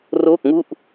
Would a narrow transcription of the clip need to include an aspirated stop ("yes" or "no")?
no